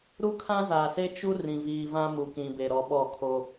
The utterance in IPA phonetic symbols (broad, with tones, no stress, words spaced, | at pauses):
ɾu˦kʰã˦zaː˨se˦ t͡ʃu˦ rĩ˨viː˨vã˦ mu˨kĩ˨be˨ɾɔ˨ ɓɔ˦˨kʰo˦